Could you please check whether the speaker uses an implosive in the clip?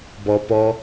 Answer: no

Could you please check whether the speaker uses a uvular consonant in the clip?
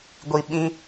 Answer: no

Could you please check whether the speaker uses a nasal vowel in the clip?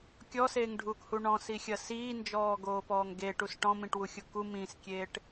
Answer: yes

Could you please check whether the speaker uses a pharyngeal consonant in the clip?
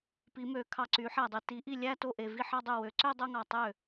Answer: yes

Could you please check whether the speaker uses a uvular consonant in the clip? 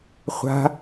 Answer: yes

